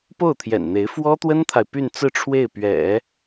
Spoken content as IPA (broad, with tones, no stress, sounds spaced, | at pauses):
p o˥˩ ʊ̯ t̪ʰ j ɛ̰˨˩ n n̪ e˧˥ ɪ̯ f w ɔ˥ t̪ w ə˥ n t̪ʰ a˨ ɪ̯ p y˥˧ n t͡s ɹ̩˥˧ ʈ͡ʂʰ w e˥˩ ɪ̯ p ɥ ɛ̰˨˩˦